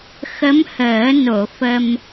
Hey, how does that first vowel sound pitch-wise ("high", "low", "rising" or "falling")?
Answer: rising